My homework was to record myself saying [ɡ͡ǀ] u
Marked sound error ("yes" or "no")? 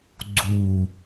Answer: no